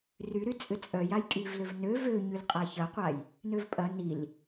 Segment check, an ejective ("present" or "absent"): present